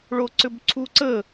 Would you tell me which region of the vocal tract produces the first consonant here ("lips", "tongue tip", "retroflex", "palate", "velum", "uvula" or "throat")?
retroflex